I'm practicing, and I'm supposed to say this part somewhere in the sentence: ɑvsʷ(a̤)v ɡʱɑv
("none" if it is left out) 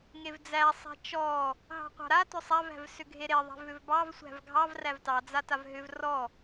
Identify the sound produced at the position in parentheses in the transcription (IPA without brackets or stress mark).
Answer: æ̤